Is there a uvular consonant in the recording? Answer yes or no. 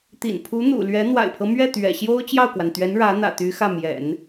no